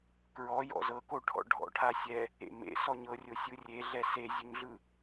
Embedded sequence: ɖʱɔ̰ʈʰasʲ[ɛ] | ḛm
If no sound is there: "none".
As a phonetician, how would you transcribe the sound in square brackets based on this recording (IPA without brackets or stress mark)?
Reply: ɛ